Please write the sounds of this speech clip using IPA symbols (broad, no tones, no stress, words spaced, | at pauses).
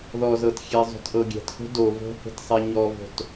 ðɔzɤtxʲe zˤo̤tʔɤɡʲɛ̤txo̤ do vo̤he̤t sˤeɲɔvo̤t